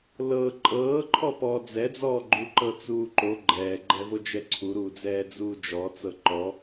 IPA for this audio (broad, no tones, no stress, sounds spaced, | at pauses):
l ɤ ǃʼ ɤː ǃʰ ɔ p ɔ d͡z ɛ d͡z ɔː ɡ͡ǃ u ǃ ɤ t͡s uː ǃ o ɡ͡ǃ ɛː ɡ͡ǃ ɛ v o d͡ʒ ɛ ǀʰ u ɾ uː d͡z ɛː d͡z uː d͡ʒ ɔ t͡s ɤ ǃ ɔ